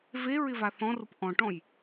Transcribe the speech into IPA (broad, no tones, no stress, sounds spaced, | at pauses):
v e ɹ ɪ v a θ ɔ̃ r ʊ p ʔ ɔ̃ ʈ ɔ̃ j